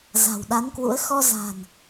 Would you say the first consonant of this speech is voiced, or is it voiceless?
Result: voiced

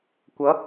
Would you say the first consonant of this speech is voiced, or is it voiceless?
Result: voiceless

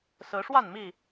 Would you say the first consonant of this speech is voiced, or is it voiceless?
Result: voiceless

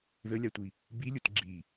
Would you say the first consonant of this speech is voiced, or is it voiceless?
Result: voiced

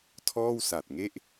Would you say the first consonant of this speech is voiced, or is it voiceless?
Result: voiceless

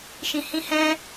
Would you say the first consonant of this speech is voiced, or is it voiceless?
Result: voiceless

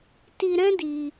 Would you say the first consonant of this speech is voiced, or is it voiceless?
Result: voiceless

